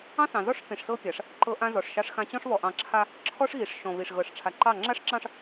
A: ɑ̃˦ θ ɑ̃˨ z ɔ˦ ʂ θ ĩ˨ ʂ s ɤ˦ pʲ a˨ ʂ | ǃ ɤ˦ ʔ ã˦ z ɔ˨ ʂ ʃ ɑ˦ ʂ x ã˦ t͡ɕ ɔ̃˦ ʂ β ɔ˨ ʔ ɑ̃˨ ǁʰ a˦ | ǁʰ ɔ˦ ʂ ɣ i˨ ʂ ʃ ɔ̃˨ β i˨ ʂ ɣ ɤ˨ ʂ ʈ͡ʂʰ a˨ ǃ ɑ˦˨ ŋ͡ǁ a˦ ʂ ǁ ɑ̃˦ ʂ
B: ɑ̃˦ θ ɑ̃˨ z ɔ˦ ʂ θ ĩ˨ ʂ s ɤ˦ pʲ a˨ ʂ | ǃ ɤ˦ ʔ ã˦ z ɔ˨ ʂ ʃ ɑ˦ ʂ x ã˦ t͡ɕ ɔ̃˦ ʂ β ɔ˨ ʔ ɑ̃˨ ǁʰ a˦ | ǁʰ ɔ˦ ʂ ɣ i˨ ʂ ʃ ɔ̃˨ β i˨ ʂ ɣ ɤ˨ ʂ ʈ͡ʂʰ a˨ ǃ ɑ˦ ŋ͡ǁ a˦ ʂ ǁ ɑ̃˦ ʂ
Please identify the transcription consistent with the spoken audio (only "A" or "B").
A